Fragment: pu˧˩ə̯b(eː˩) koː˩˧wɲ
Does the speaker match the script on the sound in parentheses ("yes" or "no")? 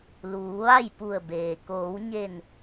yes